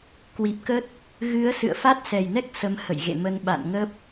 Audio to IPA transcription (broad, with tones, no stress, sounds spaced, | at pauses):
k w i˨˩ p̚ k ə˦˥ t̚ | ɣ ɨ˨˦ ə̯ s ɨ̰˧˨ ə̯ f a˦˥ t̚ s ɛ˨˩ j n ɛ˦˥ k̚ s ə˨˦ m h ə̰˧˨ j ɣ ḛ˧˨ m ə˧ n ɓ a̰˧˨ n ŋ ə˦˥ p̚